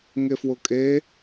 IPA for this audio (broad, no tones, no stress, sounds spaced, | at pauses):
ŋ e f w ʊ kʼ e